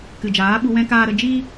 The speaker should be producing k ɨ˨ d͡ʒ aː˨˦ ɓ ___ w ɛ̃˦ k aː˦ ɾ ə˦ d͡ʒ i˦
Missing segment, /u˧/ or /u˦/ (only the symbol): u˧